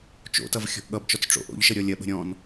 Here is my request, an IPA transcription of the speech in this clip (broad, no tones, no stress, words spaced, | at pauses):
t͡ʃo̰tʌv xʲɔ̤ʔɠʌbt͡ʃɔt͡s ʈ͡ʂo̰ʔo̰ʎʃə ɾʲɔlʲɐɓə̤ ɾʲɔ̃n